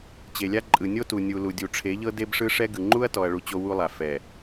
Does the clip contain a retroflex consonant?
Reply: yes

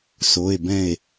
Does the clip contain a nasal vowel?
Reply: yes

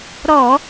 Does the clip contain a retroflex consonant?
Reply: no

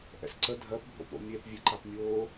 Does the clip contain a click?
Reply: yes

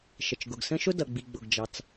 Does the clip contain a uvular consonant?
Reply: no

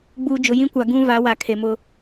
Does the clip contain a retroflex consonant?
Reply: no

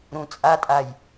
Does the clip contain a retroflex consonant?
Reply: no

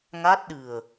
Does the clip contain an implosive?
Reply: yes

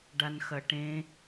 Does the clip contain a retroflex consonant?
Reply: yes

